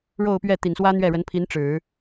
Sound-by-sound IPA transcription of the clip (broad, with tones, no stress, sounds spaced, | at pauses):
ɻ o˥˧ ʊ̯ p ɥ ɛ˥˩ t̪ i˨˩ n s w ä˥ n̪ ɥ ɛ˥˩ ɻ ə˧˥ n pʰ i˧˥ n ʈ͡ʂ ɻ̩˨˩˦